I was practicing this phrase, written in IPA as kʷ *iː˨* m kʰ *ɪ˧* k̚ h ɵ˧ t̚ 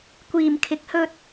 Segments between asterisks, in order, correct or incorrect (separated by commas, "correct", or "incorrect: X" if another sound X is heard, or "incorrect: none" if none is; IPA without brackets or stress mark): correct, incorrect: ɪ˨˥